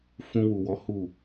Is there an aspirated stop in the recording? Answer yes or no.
no